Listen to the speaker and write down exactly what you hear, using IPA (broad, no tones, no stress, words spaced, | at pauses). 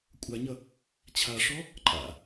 kʷʼaɲʌ | t͡ɕʰaʂɔ | ǃʼa̰